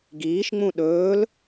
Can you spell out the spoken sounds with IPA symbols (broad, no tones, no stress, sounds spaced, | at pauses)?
ɡ iː ʃ ŋ͡m ũ ɗ ɵː l